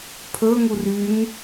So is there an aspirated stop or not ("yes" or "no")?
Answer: yes